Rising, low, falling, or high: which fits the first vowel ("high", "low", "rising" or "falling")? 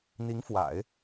rising